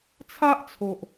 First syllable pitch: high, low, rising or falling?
high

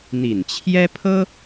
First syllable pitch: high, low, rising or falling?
low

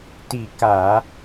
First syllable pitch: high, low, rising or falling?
falling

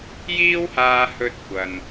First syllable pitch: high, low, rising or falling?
high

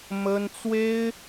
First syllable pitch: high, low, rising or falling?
high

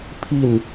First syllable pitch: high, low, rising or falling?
falling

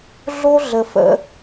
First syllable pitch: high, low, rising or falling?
high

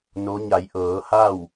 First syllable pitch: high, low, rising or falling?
rising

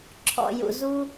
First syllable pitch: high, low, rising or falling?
low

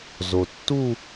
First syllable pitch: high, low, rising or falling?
low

